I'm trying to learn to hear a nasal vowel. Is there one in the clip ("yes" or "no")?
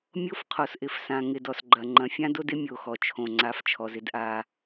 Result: yes